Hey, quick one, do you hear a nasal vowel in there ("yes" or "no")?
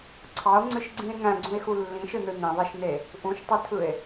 yes